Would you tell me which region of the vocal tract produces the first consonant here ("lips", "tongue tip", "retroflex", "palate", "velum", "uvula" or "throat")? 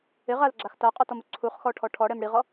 uvula